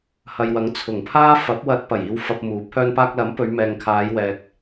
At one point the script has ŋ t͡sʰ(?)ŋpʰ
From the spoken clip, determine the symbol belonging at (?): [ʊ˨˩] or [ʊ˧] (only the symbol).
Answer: ʊ˨˩